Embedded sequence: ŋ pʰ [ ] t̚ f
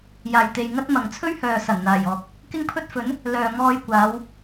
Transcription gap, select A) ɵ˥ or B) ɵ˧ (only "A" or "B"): A